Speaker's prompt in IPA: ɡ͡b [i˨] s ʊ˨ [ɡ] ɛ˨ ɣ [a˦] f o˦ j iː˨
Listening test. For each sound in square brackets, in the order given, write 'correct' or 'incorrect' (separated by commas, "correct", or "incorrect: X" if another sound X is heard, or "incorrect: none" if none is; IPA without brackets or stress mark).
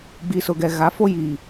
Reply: correct, correct, incorrect: a˨˦